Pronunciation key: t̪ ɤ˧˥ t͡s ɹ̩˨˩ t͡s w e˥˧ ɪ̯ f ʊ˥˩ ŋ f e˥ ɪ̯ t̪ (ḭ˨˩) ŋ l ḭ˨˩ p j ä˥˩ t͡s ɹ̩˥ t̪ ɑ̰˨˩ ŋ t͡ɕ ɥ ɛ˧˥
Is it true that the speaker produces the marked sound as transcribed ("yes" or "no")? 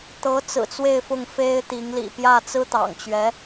no